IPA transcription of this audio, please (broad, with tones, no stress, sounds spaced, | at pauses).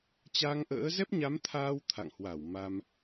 t͡ɕ a˧ ŋ ʔ ə̰ː˧˥ z ɛ˦˥ p̚ ɲ a˨˦ m t̪ʰ aː˧ w t̪ʰ a̰˧˨ ŋ h w a˧˩ w m a˧ m